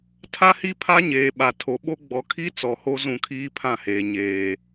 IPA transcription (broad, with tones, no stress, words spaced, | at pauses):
tʰa˦hi˦pʰa˦ɲeː˨ ɓa˨ tʰo˨ ɓo˦ ɡ͡bɔ˨kʰi˦ t͡sɔ˨ho˦ zũ˦˨kʰiː˦pʰã˦˨heː˨ ɲeː˨